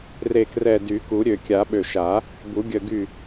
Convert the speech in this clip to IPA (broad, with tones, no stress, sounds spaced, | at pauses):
r e˧˩ k r ɛ˧˩ d y˨˩˦ k u˨˩˦ ɾʲ ø˧˩ kʲ a˨˩˦ ɓ ø˧˩ ʃ a˨˩˦ | b u˨˩˦ ɡʲ ə˧˩ ɡ y˧˩